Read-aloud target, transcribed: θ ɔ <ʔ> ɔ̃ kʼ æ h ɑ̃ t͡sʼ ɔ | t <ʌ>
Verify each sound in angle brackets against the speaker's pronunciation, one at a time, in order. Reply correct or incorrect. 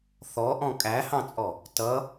correct, correct

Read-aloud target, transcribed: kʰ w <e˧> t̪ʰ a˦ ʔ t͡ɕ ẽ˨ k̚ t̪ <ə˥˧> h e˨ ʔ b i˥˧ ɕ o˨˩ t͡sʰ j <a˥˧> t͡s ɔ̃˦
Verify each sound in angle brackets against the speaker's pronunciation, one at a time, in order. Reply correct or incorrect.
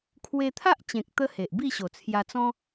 correct, incorrect: ə˧, incorrect: a˧

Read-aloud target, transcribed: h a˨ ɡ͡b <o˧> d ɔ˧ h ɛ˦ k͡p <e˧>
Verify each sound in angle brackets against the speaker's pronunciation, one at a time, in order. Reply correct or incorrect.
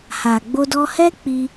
correct, incorrect: i˧

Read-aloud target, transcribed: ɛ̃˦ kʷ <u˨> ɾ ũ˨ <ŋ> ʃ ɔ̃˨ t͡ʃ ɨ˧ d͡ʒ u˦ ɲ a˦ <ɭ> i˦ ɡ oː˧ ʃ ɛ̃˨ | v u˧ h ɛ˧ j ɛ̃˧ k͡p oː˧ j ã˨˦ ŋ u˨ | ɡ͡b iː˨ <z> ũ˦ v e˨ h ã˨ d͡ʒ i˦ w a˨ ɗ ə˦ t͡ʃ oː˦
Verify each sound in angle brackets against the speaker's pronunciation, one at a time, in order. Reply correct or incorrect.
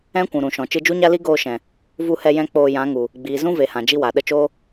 incorrect: ũ˨, incorrect: none, incorrect: l, correct

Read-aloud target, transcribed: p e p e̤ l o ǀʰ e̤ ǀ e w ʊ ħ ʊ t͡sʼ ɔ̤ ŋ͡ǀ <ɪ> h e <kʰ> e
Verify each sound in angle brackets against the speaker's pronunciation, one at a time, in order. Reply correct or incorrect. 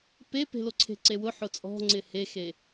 correct, incorrect: x

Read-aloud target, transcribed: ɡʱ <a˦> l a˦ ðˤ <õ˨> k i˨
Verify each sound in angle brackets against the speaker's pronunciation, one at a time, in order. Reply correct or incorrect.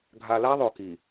incorrect: a˨, incorrect: o˨

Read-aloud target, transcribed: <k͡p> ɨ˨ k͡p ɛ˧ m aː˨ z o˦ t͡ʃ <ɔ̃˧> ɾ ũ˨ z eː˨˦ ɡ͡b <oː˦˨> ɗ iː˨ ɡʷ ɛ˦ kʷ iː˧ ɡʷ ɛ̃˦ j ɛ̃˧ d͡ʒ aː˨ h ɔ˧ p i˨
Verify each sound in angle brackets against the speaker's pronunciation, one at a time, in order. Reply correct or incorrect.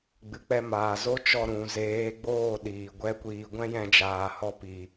incorrect: ɡ͡b, incorrect: ɔ˧, correct

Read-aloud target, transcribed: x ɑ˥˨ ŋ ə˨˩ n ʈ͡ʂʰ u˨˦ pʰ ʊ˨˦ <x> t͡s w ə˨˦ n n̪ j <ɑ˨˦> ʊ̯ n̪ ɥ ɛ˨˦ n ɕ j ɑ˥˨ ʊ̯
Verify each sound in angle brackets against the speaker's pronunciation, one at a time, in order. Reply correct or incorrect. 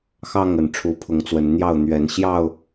incorrect: ŋ, incorrect: ɑ˥˨

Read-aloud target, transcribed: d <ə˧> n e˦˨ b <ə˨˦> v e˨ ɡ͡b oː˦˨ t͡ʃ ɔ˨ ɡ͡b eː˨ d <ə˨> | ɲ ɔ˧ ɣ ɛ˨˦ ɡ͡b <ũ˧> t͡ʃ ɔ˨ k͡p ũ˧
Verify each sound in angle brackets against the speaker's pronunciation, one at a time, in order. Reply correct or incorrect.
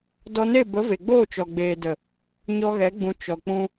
incorrect: ɔ˧, correct, correct, incorrect: ũ˨

